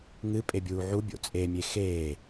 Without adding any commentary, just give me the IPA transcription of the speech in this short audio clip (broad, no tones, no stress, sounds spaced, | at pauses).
ŋ ɨ pʼ e bʲ uː ʕ u bʲ o̰ t͡sʼ e mʲ e x eː